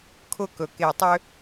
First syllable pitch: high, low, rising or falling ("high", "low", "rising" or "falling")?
falling